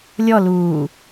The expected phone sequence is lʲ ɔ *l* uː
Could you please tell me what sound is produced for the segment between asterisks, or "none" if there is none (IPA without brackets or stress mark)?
l